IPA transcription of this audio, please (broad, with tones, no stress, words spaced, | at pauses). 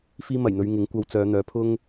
fiː˥mɐ˨˩jn̪ɵ˧ɥŋɪ˨˥ŋ kʷɐ˧w t͡sœː˨˧n̪œː˨˧ pʰʊ˥ŋ